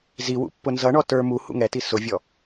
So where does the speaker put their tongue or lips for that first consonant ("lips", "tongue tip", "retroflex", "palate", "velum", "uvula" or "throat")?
tongue tip